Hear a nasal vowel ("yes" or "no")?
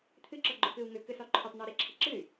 no